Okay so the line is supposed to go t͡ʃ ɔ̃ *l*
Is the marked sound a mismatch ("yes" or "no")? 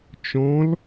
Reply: no